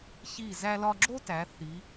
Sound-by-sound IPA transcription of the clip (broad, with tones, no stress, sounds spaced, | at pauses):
ç i˧˩ z æ˧ l ɒ˧ ɡ͡ǁ o˥ t æ˩˧ θ i˩˧